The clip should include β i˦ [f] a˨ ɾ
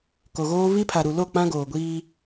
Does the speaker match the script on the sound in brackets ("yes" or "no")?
no